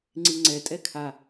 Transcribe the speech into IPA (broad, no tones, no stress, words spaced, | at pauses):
ŋ͡ǀiŋ͡ǀɛ tʼɛkʰa